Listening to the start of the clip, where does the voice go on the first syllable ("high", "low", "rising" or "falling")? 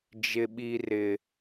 high